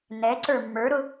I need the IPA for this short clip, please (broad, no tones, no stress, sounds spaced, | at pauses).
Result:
n ɛ ǀ ə˞ mː ə˞ ɾ ʊ